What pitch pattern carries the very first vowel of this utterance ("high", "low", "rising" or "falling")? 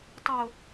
low